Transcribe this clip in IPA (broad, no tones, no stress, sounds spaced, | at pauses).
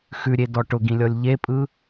x ʉ ɾʲ e d ɔ ʈ ʊ ɡ ĩ lʲ ɔ lʲ ʎ e pʼ ɯ